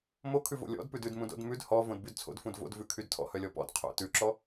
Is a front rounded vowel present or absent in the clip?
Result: present